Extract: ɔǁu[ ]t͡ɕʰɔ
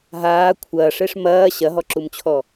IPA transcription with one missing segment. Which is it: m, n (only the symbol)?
m